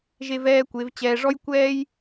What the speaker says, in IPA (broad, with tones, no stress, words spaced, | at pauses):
ʒe˧vɛː˧kʷe˩˧v t͡ɕɛː˧ʐɔ˥jkʷɛː˥j